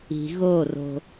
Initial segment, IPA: i̤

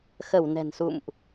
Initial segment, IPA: x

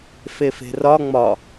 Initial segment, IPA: f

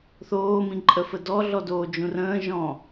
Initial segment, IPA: θ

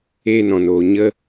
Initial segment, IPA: eː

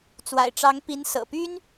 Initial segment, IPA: t͡s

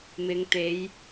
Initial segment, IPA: m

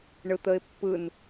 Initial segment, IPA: ɳ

